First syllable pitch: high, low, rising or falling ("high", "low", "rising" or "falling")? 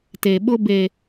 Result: low